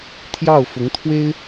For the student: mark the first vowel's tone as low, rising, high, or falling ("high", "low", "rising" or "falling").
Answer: falling